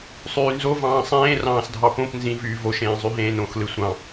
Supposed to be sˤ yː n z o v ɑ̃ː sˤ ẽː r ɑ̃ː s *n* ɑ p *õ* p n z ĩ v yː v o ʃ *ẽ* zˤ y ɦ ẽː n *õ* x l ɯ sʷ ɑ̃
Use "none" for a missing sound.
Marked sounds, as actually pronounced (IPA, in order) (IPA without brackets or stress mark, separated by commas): dʱ, õ, ẽː, õ